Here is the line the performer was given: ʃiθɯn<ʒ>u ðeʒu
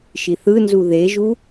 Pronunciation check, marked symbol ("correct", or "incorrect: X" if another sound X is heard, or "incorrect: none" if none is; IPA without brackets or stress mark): incorrect: z